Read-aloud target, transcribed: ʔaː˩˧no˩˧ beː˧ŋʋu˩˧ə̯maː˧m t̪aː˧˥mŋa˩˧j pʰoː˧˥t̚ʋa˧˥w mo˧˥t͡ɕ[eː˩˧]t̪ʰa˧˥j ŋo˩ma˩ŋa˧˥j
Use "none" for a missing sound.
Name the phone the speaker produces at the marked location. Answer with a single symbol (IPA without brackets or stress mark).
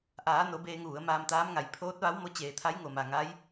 eː˩˧